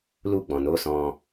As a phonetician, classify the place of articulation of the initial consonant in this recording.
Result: alveolar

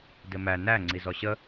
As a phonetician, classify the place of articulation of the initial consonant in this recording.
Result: alveolar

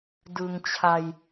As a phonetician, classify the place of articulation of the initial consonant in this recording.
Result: alveolar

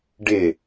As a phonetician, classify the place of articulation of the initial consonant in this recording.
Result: retroflex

